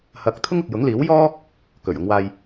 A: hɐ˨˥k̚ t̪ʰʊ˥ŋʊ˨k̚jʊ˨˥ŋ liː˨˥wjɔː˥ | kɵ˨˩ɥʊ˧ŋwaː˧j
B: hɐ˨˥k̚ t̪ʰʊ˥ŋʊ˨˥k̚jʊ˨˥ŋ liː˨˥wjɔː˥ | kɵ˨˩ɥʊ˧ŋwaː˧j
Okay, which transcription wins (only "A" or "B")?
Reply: A